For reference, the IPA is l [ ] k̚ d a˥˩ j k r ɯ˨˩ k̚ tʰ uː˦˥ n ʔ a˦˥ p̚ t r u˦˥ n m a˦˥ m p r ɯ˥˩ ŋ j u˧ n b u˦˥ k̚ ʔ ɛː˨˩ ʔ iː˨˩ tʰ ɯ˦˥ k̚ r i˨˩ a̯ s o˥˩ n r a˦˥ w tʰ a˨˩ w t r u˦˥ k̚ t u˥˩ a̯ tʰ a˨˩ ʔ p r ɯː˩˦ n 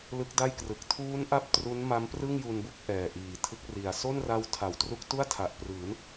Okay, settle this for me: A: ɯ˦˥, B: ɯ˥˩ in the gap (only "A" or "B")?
A